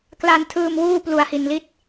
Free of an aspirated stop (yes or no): no